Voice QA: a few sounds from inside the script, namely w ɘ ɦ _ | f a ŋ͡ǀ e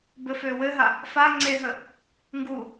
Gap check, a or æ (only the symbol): a